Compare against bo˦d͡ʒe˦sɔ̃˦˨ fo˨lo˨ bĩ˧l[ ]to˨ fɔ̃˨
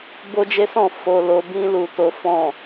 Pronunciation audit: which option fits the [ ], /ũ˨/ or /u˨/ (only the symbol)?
u˨